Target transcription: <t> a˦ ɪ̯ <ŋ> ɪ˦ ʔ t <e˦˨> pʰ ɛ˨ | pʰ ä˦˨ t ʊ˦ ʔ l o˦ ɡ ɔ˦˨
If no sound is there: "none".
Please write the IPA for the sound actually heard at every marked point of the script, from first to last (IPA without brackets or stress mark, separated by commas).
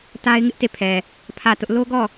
t, ŋ, e˦˨